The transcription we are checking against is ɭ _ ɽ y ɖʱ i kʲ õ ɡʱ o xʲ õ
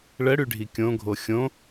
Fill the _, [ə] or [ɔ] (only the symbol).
ə